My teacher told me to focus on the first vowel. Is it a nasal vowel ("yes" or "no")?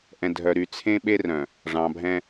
yes